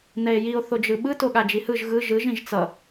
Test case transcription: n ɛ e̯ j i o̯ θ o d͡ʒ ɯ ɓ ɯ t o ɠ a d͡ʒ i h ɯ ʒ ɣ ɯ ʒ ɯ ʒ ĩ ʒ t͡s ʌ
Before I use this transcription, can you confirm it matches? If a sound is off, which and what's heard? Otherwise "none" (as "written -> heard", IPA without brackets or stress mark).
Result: none